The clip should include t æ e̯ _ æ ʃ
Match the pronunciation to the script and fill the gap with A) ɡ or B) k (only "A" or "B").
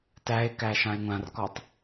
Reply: B